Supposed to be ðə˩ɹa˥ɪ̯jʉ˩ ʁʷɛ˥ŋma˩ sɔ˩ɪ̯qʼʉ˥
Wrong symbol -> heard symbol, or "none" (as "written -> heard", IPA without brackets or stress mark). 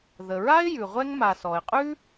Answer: none